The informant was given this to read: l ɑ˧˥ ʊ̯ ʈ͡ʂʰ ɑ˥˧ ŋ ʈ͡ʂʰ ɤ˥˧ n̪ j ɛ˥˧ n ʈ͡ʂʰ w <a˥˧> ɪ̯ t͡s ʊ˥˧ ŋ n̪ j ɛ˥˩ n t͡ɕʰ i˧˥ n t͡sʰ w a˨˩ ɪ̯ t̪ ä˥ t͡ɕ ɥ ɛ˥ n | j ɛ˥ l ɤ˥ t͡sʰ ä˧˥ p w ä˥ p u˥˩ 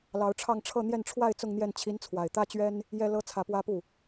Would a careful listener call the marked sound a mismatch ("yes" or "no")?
no